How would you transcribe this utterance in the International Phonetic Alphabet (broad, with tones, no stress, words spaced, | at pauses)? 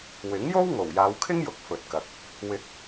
wɪ˨˥ŋjo˥w ŋo˨˩wjaː˨˧wkʰɪ˥ŋjʊ˨˥k̚ fɵ˨t̚kɐ˨k̚ | wɪ˨˥k̚